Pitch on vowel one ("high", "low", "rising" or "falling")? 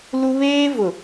high